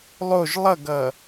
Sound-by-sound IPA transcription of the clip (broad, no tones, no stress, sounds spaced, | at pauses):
lˠ o ʒ lˠ ʌ ɡ ʌ